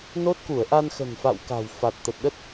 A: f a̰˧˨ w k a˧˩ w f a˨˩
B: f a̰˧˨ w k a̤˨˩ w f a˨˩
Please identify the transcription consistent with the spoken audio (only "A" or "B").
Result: B